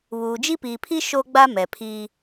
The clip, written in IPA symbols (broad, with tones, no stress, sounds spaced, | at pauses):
β uː˨ d͡ʒ i˦ p iː˨ pʰ i˦ ʃ o˦ ɡ͡b a˦ m ɛ˨ pʰ iː˦